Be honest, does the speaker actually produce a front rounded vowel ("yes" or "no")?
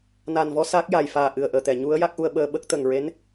no